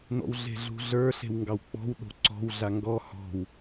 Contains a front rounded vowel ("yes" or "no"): no